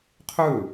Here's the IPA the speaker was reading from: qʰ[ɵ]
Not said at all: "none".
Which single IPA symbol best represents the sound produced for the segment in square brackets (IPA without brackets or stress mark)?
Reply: ɵ